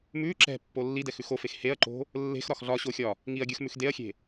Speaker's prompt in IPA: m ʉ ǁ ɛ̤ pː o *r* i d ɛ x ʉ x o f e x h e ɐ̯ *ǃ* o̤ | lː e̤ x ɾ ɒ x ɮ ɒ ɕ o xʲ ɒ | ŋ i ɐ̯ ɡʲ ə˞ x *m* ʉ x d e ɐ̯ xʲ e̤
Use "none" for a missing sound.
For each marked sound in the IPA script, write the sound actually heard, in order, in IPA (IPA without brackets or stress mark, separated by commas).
lː, ǃ, m